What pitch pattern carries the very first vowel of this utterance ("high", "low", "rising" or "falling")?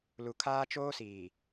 low